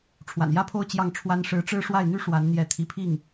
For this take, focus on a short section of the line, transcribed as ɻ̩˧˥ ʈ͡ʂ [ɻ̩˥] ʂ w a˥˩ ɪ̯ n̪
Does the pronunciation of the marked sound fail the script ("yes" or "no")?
no